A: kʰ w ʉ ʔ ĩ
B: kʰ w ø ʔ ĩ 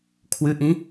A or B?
A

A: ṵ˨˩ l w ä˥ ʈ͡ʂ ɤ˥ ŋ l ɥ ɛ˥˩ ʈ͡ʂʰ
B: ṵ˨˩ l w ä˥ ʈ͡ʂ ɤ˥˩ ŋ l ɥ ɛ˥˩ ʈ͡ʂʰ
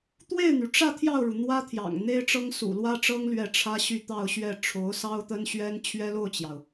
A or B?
A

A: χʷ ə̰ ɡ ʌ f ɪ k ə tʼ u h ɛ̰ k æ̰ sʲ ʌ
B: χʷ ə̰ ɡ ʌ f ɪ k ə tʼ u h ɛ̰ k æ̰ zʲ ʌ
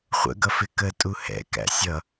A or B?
A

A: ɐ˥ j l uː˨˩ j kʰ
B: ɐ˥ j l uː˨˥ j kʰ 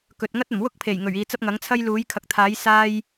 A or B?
B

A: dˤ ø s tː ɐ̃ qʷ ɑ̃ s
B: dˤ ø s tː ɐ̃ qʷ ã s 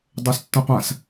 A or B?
B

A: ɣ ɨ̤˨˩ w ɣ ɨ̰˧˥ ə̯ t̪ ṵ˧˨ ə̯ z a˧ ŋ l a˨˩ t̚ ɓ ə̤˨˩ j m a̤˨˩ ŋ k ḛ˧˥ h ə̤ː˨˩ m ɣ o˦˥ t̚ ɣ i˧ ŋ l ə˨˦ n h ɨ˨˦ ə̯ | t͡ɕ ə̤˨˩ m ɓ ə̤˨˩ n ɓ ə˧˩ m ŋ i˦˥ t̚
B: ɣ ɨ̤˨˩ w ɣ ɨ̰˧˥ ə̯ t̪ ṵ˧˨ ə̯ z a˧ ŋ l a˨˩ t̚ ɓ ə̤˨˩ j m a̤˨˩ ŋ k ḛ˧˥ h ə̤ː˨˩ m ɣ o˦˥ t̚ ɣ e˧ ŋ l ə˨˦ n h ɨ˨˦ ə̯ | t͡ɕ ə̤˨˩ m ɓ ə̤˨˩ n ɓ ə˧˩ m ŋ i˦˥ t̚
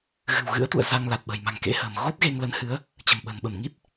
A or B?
B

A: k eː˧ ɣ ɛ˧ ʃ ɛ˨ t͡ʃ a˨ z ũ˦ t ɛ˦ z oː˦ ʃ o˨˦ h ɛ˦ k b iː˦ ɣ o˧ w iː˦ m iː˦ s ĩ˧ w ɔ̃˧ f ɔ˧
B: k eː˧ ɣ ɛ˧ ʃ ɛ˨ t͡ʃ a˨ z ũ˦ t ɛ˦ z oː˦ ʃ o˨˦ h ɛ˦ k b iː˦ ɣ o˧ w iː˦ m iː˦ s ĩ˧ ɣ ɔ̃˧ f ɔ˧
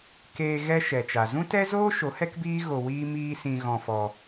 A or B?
B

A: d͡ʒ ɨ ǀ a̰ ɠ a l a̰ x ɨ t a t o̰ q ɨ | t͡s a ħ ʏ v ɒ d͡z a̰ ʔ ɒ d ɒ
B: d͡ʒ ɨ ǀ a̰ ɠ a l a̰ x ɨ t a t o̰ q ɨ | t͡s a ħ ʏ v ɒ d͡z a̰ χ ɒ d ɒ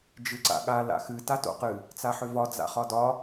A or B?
B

